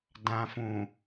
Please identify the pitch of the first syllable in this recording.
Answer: low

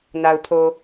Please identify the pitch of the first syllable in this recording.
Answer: low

